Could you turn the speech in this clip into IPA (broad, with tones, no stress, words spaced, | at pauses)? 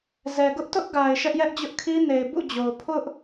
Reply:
zɛ˨ ɡʊ˦ʔtʊ˦ʔɡa˨ɪ̯ ʃɛ˦ʔjɛ˦ʔd͡ʑʊ˦ʔkʰi˦ ne˨ɪ̯bṵ˦˨d͡ʑo˨ʊ̯ pʰʊ˦ʔ